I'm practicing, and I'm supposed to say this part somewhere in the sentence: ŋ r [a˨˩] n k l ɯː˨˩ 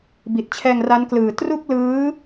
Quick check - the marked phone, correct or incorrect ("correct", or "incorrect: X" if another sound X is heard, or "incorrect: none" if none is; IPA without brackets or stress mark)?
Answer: incorrect: a˦˥